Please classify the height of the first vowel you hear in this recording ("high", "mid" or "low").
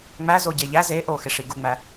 low